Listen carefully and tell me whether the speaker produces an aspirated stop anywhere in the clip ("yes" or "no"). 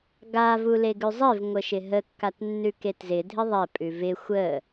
no